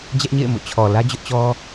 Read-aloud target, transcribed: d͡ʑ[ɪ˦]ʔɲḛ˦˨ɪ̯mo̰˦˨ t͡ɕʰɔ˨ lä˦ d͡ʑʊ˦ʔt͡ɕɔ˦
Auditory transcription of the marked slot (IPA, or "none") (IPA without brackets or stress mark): ɛ˦